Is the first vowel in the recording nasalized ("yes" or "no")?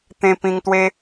yes